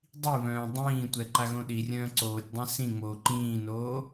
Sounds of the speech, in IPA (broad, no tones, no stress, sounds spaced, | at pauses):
dˤ i β œ̃ː dˤ ĩː tʷ ɛ ǃ a ɣ õ ɗ i rʲ œ̃ː ǀ oː tʲ dˤ ɛ̃ s ĩ ŋ͡m oː ǃ ĩː n oː